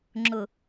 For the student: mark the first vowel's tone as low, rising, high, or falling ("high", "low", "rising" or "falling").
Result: low